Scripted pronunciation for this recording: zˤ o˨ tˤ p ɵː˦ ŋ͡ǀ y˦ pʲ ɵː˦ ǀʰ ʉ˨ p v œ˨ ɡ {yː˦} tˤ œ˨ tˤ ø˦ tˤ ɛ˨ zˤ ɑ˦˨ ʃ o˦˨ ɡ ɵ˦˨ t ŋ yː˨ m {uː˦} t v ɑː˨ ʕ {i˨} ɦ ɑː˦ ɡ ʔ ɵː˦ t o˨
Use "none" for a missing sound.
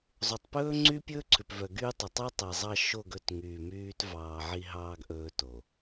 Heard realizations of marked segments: yː˦, yː˦, i˦

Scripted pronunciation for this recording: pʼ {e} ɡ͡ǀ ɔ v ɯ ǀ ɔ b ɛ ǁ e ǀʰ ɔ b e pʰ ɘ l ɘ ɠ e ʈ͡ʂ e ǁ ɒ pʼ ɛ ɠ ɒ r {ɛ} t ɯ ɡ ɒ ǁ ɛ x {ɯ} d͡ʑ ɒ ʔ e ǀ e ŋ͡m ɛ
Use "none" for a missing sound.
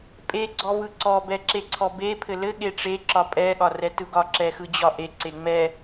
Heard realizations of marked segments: e, ɛ, ɯ

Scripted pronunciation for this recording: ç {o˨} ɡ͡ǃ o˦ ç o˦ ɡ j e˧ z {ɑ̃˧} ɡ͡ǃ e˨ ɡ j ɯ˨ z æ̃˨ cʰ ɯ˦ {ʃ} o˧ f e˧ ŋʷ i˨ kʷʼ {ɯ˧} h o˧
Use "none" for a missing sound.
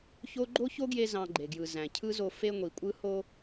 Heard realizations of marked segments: o˦, ɑ̃˧, z, ɯ˧

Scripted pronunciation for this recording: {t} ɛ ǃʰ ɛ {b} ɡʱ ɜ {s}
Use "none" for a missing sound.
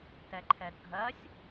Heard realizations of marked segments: t, d, sʲ

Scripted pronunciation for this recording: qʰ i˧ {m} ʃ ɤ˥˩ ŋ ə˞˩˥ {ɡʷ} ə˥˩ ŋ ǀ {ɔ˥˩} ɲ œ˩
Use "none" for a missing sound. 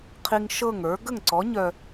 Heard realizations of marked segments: ŋ, ɡ, ɔ˩˥

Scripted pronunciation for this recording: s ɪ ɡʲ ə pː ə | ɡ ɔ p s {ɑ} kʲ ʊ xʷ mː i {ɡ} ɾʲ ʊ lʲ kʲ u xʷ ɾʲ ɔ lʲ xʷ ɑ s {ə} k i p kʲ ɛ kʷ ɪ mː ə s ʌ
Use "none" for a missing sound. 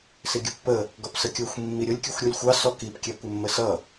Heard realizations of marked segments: ə, none, ɔ

